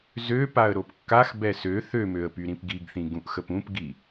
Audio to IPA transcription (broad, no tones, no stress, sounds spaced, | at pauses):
z ø p a ə̯ ɾ o p kː a x b ɛ s ø θ ø m ø ə̯ p y ɾ ĩ p ɡ i ɡ θ ĩ ɡ ũ ʔ x ə p ũ p ɡ i